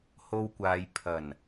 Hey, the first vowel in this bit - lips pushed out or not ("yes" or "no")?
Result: yes